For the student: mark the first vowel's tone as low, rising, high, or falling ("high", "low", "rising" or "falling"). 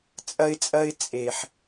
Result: high